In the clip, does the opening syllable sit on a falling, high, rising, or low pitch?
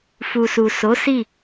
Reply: low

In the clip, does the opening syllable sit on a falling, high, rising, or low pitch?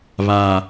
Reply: low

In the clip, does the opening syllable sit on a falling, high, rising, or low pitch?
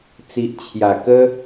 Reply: low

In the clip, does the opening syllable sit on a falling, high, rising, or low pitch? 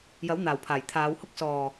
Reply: rising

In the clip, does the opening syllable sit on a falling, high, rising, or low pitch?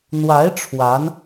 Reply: rising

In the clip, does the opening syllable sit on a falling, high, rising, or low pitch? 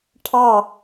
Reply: falling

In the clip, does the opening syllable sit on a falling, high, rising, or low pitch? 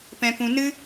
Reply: low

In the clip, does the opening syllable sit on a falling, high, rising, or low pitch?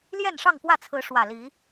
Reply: falling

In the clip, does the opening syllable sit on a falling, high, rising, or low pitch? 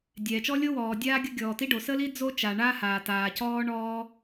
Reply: low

